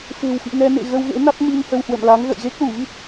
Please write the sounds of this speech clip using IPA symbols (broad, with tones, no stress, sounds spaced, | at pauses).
f e̤˨˩ w f ḭ˧˨ ŋ ɛ˧ n ḛ˧˨ ɣ ə˧ w ɣ ḛ˧˥ n a˦˥ t̚ m i˧ ŋ h ə˧ w h w ə̰˧˨ m l a˨˦ ŋ ɣ ə̰˧˨ j ɣ e˦˥ k̚ l u˧˩ v i˦˥ t̚